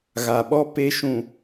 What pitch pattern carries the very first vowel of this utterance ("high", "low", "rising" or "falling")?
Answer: low